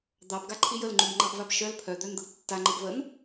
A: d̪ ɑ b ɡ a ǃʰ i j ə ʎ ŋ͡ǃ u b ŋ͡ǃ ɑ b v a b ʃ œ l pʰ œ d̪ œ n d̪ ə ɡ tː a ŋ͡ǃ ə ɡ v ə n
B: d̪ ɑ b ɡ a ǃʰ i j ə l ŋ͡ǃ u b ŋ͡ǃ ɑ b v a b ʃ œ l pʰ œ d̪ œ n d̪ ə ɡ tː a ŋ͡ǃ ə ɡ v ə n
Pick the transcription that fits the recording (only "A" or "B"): B